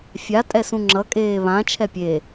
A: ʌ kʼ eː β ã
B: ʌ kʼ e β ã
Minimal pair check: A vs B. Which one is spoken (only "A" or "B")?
A